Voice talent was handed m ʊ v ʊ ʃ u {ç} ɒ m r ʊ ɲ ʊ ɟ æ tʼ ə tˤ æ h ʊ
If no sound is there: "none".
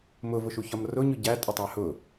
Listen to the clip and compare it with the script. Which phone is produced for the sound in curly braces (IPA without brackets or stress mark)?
ç